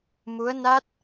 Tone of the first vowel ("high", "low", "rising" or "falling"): rising